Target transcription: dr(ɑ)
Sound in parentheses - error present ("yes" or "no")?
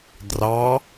no